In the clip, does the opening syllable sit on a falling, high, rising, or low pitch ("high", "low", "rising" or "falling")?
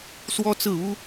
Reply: high